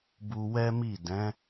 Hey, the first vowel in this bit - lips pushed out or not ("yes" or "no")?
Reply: yes